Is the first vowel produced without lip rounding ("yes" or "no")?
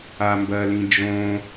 yes